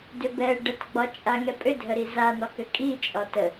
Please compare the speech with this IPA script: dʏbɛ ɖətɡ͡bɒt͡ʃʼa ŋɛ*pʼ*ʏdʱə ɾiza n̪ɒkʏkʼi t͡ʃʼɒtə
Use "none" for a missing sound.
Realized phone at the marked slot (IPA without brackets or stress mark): pʼ